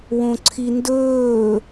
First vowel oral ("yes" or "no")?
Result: no